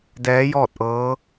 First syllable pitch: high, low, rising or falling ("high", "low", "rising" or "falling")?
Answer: rising